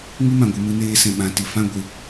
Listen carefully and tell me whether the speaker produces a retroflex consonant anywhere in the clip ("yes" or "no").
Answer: no